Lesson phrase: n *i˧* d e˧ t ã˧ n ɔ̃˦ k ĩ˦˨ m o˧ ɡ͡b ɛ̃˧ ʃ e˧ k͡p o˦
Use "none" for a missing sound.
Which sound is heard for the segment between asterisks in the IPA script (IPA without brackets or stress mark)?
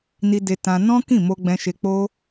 i˧